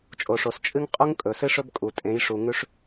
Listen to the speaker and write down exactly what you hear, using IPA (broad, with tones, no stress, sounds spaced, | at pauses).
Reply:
t͡ʃʼ o˨ ʂ o˨ s t͡ʃʼ ɨ˦ ŋ qʼ u˦ ŋ kʼ ɵ˨ s ɨ˦ ʂ ɵ˦ b kʼ u˨ tʼ ẽ˨˦ j ʂ u˨ ŋ ʉ˦ ʂ